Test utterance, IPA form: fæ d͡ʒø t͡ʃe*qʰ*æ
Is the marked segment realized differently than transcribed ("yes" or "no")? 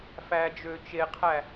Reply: no